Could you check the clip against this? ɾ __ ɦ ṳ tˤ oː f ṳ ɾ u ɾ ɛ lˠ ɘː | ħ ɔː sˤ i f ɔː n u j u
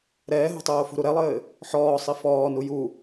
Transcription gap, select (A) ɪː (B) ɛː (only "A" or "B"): B